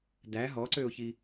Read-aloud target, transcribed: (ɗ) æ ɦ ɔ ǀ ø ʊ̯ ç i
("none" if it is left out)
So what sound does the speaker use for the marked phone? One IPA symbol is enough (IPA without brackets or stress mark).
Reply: d